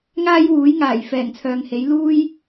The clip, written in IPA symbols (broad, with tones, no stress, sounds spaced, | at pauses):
ŋ aː˥ j w uː˨˥ j ŋ aː˨˩ j f ɛː˨˩ ŋ t͡sʰ œː˨ ŋ h e˨˥ j l uː˥ j